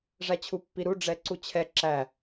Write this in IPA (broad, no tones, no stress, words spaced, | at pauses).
ʐæt͡ɕʰupːiɾu ɖ͡ʐɛǀut͡ɕʰɛ ǁæ